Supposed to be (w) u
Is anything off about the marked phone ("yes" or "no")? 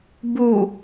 yes